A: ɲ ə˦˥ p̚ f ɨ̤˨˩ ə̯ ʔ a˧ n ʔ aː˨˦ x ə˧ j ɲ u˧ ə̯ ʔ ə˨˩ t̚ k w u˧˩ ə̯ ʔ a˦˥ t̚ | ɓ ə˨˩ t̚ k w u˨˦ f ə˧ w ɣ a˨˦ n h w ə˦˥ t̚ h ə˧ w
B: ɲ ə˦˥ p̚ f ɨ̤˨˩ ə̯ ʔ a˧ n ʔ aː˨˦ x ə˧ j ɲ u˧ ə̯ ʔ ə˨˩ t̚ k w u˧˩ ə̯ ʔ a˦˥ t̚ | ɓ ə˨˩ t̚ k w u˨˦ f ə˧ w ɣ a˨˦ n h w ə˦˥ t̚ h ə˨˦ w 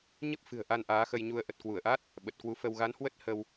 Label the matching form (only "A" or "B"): A